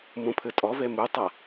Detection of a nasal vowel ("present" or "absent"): present